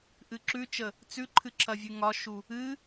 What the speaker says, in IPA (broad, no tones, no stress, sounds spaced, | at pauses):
ʔ ɨ ǁ ʉ t͡ʃ ə | t͡s ʉ ǃʰ ɨ ǁʰ ɐ vʲ ʉ ŋ ɒ ʃ u | ɨ